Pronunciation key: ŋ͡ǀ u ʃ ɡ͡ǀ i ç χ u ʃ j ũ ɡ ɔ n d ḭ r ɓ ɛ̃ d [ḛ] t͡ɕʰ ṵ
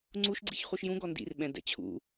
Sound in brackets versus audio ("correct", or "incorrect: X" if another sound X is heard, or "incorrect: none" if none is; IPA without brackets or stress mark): incorrect: ɛ̰